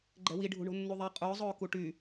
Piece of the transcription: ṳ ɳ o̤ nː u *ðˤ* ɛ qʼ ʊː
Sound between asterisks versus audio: correct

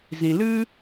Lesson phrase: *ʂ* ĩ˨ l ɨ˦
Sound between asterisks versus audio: incorrect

